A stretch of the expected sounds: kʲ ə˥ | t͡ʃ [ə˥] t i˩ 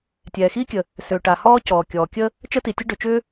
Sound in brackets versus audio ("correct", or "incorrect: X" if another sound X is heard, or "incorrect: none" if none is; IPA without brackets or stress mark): correct